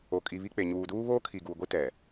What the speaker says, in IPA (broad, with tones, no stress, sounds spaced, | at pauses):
o˨ kʼ i˨ β i˦ k͡p e˨ ɲ uː˨ d uː˦ β oː˦ kʰ i˨ ɡ u˨ ɡʷ i˦ t ɛ˨